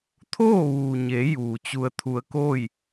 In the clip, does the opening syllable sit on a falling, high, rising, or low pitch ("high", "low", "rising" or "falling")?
falling